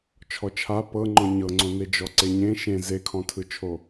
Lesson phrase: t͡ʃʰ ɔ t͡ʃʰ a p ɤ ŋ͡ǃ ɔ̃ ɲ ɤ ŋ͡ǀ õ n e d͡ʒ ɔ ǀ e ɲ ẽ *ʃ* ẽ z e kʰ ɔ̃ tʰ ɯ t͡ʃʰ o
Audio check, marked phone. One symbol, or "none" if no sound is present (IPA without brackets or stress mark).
ʃ